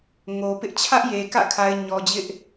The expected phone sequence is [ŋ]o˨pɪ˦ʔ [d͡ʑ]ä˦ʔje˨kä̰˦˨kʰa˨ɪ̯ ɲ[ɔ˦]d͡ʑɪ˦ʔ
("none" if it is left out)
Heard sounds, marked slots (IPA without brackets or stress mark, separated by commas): ŋ, t͡ɕʰ, ɔ˨